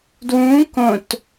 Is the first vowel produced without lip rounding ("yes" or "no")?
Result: no